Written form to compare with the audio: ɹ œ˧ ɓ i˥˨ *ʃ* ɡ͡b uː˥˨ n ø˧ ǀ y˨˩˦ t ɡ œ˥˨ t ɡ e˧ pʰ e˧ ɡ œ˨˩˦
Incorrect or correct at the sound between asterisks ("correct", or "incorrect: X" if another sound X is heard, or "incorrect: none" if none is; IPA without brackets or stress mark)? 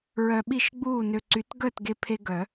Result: correct